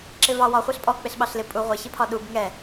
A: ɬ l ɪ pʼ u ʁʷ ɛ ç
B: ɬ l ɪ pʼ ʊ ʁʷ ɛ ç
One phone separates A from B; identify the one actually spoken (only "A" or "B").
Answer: A